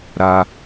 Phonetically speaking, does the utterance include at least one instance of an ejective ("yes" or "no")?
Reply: no